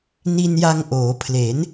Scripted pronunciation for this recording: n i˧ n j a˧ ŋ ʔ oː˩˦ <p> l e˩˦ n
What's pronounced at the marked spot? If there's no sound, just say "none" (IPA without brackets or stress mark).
pʰ